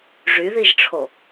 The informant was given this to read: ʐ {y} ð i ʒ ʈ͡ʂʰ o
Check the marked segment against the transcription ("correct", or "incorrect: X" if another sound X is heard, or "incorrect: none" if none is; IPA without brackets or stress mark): correct